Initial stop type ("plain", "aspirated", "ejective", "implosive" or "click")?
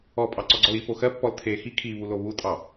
ejective